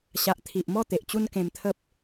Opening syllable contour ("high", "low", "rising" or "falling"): low